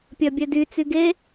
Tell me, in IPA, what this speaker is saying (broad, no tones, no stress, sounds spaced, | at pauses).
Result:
pʲ ɜ bʲ ɛ d y t͡s y ɡ e